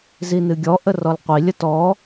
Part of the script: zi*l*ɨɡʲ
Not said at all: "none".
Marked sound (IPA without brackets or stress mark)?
n